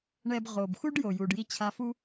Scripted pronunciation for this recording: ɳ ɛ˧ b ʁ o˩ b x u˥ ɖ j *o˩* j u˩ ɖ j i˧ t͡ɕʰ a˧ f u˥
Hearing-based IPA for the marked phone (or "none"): o˩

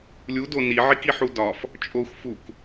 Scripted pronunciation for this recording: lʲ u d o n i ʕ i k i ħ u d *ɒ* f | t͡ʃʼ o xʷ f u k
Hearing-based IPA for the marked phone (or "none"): ɒ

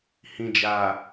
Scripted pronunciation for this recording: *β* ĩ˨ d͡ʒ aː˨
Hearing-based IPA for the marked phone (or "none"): h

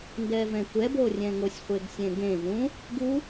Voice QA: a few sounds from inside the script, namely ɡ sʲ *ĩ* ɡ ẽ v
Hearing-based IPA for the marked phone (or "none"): ẽ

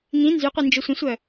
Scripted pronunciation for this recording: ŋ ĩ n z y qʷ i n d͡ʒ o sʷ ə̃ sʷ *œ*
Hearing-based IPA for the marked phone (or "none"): œ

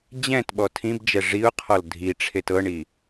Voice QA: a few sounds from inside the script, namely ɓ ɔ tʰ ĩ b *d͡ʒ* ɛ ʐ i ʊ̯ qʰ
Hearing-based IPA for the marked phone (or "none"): d͡ʒ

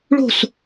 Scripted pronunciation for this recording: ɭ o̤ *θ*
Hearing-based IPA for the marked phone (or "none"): s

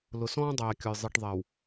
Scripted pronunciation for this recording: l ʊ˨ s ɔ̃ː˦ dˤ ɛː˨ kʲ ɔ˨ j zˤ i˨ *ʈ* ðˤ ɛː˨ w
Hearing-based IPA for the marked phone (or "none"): ʈ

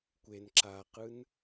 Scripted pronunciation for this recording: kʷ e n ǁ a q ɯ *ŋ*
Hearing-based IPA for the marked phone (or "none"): n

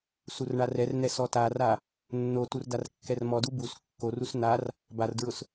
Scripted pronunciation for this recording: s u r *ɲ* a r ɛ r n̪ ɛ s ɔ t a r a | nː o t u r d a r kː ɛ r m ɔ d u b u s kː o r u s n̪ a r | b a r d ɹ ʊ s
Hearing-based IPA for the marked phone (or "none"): ɳ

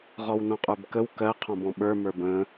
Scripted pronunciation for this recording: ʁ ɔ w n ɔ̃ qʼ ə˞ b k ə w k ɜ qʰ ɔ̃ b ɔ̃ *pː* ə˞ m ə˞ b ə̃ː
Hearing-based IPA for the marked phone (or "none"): ɓ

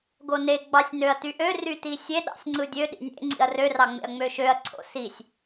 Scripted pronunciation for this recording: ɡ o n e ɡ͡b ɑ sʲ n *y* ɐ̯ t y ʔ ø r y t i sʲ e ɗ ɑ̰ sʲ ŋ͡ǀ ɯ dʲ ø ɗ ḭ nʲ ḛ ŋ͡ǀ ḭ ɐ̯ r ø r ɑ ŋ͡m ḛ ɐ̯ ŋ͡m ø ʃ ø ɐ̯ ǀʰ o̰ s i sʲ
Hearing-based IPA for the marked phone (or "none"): ø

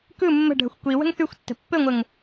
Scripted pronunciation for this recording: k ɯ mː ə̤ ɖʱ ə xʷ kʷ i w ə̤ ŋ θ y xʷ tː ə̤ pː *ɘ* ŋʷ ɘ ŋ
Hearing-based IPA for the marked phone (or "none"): ɘ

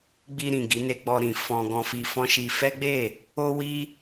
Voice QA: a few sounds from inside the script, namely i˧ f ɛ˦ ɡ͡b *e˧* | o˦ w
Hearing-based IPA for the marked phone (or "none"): e˦˨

